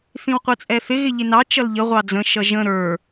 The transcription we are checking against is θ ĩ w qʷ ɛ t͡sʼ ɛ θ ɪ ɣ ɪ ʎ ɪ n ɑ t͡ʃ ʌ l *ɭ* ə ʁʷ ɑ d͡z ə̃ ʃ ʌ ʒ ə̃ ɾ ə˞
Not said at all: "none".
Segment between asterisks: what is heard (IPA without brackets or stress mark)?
ʎ